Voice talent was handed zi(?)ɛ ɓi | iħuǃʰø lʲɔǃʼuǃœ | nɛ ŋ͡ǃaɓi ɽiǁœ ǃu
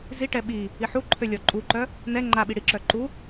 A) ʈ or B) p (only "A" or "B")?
A